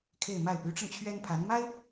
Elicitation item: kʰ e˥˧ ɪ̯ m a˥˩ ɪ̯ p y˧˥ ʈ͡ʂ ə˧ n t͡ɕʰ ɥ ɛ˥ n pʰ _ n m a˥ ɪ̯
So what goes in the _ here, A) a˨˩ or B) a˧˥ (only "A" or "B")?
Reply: B